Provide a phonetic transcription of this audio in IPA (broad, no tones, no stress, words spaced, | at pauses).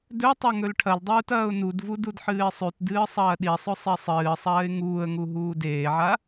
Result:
dɵtˤɐ ŋɵlʈʰɐldˤuːt ɐːʊ̯nudvu dudħɨːɪ̯sˤʉtdɨː sˤɐːɗisˤɵ sˤesˤɨːsˤɐːɪ̯ ŋuːə̯ŋu ɦuːdeːʕa